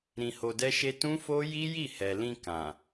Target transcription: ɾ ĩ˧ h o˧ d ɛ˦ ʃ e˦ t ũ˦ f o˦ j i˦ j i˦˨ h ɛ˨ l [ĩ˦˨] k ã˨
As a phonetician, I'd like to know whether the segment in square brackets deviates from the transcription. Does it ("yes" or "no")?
yes